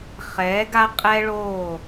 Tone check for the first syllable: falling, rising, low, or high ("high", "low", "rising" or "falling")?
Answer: rising